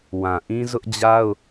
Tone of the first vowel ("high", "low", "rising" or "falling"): low